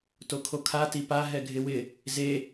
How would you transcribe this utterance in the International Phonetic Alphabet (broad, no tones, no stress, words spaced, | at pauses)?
tokʰokʰa tipaɦɛ ɡʱɪwɪ | ze